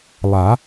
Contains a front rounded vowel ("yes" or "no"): no